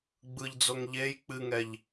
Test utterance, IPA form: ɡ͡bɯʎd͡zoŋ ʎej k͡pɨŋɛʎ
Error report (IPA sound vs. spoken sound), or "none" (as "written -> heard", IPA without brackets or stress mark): none